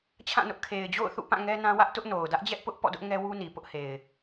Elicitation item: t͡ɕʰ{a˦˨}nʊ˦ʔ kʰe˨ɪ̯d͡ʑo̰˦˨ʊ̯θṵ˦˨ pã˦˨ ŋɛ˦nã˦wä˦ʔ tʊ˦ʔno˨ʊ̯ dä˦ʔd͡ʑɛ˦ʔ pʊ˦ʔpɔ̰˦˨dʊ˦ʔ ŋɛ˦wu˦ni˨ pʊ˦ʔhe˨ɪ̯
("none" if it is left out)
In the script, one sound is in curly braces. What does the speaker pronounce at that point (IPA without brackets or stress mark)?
ã˦˨